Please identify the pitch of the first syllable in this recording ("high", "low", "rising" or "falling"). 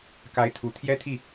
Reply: rising